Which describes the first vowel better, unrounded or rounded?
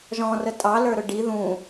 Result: rounded